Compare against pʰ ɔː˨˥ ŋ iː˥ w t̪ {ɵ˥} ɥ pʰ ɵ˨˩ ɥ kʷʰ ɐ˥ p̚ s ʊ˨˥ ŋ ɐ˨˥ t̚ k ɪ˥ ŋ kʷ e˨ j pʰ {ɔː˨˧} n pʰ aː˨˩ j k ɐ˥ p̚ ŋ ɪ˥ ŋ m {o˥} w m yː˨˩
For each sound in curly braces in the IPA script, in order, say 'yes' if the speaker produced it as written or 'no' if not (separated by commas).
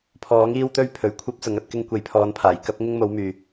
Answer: yes, yes, no